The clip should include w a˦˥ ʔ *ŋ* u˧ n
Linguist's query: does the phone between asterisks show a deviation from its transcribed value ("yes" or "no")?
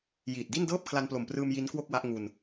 no